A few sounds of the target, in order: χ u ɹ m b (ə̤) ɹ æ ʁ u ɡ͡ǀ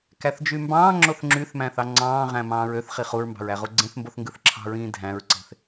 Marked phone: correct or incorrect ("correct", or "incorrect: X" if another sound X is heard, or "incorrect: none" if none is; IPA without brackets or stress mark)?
incorrect: ɑ̤